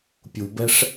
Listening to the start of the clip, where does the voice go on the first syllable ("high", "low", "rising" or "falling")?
low